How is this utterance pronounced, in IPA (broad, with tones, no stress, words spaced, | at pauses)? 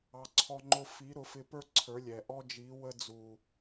ɑ˧ǀʰɔ˦ŋ͡ǃʊ˦ fi˨˦ɾʊ˨˦fɪ˧pə˞˦ ǀʰə˞˨˦lʲɛ˨ ʔɔ˦d͡ʒi˨˦ wə˧d͡zu˨